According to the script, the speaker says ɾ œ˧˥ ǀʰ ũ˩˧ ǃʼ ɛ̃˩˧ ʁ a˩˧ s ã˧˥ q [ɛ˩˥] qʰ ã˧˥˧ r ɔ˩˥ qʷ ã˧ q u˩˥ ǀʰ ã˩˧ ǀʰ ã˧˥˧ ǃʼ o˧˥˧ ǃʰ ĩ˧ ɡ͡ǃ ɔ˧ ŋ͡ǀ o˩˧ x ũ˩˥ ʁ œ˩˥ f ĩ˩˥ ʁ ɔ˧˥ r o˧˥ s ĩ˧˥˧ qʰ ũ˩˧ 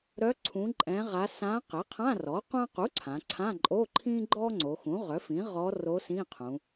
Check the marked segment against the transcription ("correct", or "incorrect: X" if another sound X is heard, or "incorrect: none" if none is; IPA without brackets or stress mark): correct